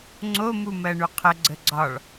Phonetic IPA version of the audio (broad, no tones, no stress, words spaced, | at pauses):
ŋ͡ǀo mumɜɳuqʰə ɡ͡ǀəɡ͡ǀɒɭ